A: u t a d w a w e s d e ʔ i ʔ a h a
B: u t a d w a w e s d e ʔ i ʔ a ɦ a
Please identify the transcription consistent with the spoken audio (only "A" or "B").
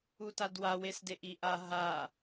B